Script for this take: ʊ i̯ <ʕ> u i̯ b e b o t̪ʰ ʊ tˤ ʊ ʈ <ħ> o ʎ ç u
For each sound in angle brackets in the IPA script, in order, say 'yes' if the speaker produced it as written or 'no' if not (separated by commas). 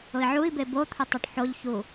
yes, yes